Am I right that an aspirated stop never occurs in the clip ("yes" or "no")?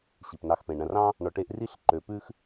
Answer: yes